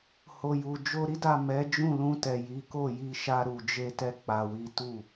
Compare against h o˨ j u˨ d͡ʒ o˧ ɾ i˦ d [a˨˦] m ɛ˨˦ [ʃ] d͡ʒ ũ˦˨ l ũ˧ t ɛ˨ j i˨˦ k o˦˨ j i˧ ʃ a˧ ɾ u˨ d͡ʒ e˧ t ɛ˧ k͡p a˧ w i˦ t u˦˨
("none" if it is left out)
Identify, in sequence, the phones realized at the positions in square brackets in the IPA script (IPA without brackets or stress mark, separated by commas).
a˦˨, none